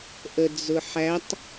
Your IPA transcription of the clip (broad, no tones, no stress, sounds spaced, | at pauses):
ʔ ə d͡z ʊ ħ æ tˤ